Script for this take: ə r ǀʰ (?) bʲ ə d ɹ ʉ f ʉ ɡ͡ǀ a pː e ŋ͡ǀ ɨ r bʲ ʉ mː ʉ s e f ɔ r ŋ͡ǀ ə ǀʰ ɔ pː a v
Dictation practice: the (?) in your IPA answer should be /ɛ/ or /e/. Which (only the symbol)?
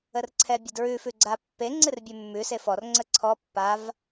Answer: ɛ